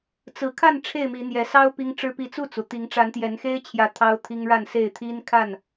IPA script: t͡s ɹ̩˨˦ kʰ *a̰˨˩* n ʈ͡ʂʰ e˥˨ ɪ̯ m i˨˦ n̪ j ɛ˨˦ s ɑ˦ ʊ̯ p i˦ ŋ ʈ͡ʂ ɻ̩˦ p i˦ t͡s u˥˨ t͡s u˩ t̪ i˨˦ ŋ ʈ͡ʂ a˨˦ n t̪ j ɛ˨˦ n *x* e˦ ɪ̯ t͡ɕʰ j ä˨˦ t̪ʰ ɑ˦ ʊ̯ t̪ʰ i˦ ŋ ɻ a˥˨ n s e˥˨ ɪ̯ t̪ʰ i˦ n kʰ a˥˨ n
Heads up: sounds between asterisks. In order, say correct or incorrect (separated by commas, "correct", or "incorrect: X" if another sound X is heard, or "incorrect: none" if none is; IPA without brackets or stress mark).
incorrect: a˥˨, correct